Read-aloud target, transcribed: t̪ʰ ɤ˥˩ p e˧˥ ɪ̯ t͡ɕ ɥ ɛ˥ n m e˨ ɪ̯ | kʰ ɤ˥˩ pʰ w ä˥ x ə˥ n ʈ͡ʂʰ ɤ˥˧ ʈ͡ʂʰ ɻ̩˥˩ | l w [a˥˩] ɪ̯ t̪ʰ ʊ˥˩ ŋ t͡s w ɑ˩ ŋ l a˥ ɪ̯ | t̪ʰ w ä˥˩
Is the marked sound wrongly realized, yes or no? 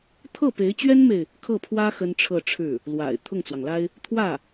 yes